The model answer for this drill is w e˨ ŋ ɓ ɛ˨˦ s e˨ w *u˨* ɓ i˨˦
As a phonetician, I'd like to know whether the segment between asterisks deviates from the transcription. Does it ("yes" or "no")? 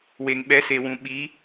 yes